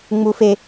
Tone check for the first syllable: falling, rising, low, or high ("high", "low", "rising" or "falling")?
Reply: high